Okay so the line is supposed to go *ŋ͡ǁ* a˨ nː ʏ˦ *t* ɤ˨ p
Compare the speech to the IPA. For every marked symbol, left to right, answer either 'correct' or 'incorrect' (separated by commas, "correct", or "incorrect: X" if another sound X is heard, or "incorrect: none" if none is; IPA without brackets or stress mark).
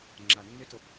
correct, correct